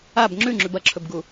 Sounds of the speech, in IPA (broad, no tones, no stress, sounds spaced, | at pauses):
a b ŋ͡ǁ ʉ ŋ͡ǁ ʉ b ɐ ǁʰ ɵ b ɡ u